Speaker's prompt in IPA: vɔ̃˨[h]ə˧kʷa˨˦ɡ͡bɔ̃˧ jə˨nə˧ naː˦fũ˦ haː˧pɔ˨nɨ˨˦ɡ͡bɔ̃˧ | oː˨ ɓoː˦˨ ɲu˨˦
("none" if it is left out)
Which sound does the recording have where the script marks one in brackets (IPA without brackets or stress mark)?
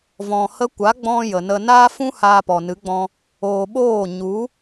h